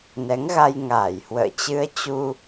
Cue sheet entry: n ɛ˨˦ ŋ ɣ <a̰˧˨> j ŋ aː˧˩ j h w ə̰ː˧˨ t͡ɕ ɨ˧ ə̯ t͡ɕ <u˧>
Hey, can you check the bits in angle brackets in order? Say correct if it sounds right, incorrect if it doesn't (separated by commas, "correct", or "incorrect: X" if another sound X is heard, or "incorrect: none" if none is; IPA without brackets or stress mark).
incorrect: a˧, correct